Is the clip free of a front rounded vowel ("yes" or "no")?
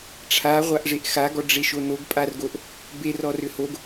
no